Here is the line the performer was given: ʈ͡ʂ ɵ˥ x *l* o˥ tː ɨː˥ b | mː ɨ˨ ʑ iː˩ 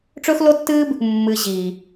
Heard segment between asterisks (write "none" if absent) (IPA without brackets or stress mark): l